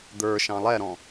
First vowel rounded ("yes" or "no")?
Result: no